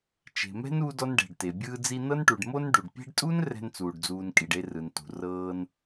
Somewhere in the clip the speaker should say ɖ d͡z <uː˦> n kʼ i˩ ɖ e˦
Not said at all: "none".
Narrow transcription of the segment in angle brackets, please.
uː˨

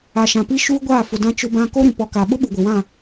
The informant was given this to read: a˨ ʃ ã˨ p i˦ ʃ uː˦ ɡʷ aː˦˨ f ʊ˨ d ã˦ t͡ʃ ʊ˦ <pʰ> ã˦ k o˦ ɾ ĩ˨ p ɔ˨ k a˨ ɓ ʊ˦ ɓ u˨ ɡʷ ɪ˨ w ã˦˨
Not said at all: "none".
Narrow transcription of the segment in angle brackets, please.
b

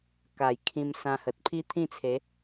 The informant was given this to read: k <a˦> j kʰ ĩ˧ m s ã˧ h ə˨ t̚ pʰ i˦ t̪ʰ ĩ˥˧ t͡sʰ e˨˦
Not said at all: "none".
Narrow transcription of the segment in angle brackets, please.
a˨˩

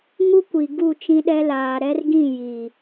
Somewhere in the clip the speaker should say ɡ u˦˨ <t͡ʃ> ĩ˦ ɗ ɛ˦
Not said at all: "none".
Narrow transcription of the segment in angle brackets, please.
t͡ʃ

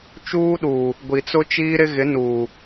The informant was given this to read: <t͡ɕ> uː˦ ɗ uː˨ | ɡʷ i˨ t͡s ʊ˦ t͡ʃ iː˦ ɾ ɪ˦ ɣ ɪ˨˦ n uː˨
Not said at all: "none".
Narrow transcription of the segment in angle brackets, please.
t͡ʃ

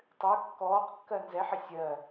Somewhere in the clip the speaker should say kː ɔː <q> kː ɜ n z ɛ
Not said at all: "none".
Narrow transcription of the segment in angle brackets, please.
q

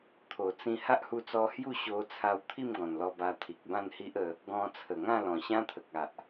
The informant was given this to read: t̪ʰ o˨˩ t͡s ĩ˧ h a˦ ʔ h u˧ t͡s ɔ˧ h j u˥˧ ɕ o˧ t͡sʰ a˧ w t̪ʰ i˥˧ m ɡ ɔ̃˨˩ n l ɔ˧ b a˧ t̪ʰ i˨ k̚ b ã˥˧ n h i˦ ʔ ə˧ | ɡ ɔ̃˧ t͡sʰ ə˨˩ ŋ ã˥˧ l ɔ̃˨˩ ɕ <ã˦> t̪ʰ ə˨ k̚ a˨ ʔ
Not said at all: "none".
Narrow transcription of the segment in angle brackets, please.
ã˦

